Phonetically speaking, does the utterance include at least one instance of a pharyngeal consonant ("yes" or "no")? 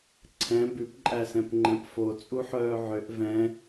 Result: yes